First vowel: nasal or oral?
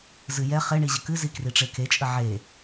oral